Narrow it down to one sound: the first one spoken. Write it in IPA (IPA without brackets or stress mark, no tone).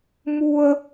m